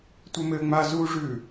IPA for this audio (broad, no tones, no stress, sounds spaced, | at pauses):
tʷ ɘ m ɘː ŋ͡m a z u ʐ ʉː